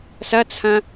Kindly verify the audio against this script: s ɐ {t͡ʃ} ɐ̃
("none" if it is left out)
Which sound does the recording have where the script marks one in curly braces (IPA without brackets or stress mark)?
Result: t͡sʰ